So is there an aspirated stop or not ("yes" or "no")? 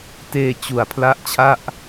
yes